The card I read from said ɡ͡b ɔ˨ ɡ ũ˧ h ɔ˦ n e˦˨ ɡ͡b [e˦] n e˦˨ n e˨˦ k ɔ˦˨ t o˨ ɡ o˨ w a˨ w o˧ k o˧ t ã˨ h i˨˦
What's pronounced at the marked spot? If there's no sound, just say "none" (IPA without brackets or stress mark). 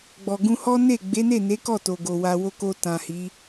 e˨˦